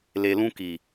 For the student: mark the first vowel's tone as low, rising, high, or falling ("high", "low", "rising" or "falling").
low